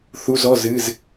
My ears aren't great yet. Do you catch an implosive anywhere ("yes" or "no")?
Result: no